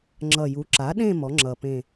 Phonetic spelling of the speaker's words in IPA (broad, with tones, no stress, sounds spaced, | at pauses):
ŋ͡ǁ ʌ˨˩ j u˩˥ ǁ a˩˥ ɗ ẽ˦˨ m ɔ˩˥ ŋ͡ǁ ʌ˨˩ p ẽ˦˨